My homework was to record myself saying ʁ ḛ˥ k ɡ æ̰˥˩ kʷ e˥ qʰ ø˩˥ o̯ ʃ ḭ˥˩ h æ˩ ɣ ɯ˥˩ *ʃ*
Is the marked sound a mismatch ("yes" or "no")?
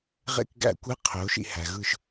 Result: no